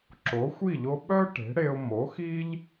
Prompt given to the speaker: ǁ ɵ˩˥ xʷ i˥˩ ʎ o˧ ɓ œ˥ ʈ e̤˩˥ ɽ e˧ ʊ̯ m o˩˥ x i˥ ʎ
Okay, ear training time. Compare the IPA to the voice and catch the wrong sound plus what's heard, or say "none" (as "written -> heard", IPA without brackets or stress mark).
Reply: ɵ˩˥ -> o˩˥